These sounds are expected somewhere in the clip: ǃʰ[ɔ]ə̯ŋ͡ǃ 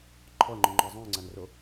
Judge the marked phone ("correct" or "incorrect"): correct